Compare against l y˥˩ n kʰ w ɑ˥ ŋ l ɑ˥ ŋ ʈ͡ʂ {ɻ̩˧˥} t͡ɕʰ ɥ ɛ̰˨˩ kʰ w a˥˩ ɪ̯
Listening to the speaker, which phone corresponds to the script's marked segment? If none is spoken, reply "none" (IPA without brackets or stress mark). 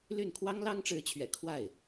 ɻ̩˧˥